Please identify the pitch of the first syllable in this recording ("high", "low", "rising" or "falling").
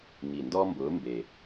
low